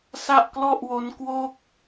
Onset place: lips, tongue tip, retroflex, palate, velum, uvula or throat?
tongue tip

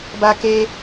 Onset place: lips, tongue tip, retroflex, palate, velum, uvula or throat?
lips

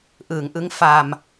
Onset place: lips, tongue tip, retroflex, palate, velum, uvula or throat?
throat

